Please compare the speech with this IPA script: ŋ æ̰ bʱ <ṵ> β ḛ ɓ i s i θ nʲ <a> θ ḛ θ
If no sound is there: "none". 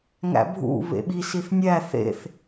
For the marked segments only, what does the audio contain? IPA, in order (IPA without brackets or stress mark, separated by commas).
ṵ, æ